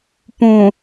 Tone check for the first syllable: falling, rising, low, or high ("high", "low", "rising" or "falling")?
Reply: low